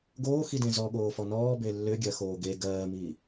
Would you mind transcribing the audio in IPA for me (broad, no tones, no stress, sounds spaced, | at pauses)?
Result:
ɡ oː x i d ẽ z ɔ ɠ oː f ɔ n ɔː b e lː ʏ ɡʲ ɜ x oː ɡ e ɡ ɜː m i